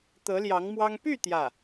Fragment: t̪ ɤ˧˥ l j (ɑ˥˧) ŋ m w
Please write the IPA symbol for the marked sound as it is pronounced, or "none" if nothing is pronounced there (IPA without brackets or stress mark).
ɑ˧˥